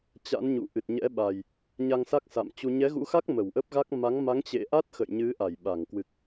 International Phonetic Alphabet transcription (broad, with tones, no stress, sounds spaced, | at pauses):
t͡ɕ a̰˧˥ n ɲ ṵ˧˨ ʔ ɨ˨˩ t̚ ɲ ɛ̰˧˥ ɓ a˨˩ j | ɲ a˧ ŋ s a˦˥ k̚ s a̰˧˨ m t͡ɕ u˧ ɲ ɛ˨˦ ɣ ṵ˧˥ x a˦˥ k̚ m ə˧˩ w ʔ ə˦˥ p̚ ɣ a˦˥ k̚ m a˨˦ ŋ m a˨˦ ŋ t͡ɕ ḛ˧˨ ʔ a˦˥ t̚ x ə̰˧˨ j ɲ ɨ˨˦ ʔ a˧˩ j ɓ a˧˩ ŋ k w ɨ˨˩ k̚